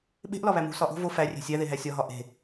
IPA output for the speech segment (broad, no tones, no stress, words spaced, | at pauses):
ɓe̤ʔlɒβæ mṳ sɒʔo̤ vo færʲe̤ sʲæðeɦæ sʲɒɦɒ ʔe̤